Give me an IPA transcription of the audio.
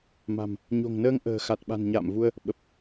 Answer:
m a̤˨˩ m | ɲ o̤˨˩ ŋ n əː˧ ŋ ʔ ə̤ː˨˩ x a˨˩ t̚ ɓ a̤˨˩ n ɲ a̰ː˧˨ m v u˧ ə̯ | ɓ ə˨˩ p̚

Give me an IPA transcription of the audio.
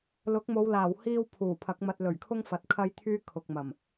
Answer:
l ʊ˨˥ k̚ m o˨˧ w l aː˨˩ w h iː˥ w pʰ uː˨˩ pʰ ɐ˨˥ k̚ m ɐ˧ t̚ l ɵ˨˩ ɥ kʰ ʊ˥ ŋ f ɐ˨ t̚ kʰ ɐ˥ j t̪ʰ yː˥ kʰ ʊ˨ k̚ m ɐ˨˩ m

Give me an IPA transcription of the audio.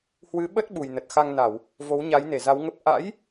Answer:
h w ɨ˨˦ ɓ ə˦˥ t̚ ɓ u˨˩ j n ə˨˩ t̚ x a˧ ŋ n a˧˩˨ w | v o˨˦ w ɲ a˨˦ j n e˧˩ z a˨˦ w ŋ ə˦˥ p̚ ʔ a̰˧˥ j

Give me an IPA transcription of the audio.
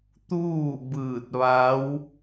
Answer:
t̪ uː˥˨ b ɯː˧˩ t̚ ʋ a˧˥ w

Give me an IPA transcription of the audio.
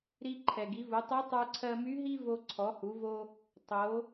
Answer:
ɾ i˧ ǃʰ ɛ˩ ɡ i˩˧ v u˩˧ tˤ u˧˥ tˤ ə˞˧ ǀʰ ɜ˧ m y˧˥ ɦ i˥ v o˧ ǀʰ ɔ˩˧ h u˩˧ v o˧ | tˤ o˩˧

